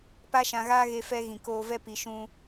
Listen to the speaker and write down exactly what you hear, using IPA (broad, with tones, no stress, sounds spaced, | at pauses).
p a˦ ʃ ã˧ ɣ aː˦ ɣ e˧ f ɛ˧ ɣ ĩ˨ k oː˧ v ɛ˦ p i˨ ʃ ũ˧